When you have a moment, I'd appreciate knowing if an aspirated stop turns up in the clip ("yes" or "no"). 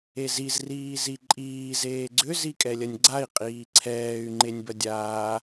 yes